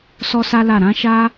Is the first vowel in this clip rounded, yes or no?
yes